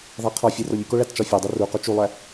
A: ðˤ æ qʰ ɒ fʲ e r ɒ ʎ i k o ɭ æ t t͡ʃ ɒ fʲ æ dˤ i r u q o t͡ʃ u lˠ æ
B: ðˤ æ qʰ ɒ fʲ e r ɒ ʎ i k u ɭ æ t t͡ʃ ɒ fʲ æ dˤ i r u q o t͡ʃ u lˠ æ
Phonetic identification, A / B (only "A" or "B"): A